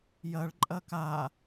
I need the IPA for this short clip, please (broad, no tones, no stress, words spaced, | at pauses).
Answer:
jɐɭǃʼɐ ka